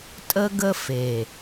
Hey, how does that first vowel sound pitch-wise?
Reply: high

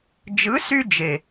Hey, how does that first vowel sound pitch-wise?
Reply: rising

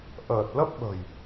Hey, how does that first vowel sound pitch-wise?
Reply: low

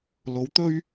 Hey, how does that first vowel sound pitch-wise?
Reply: rising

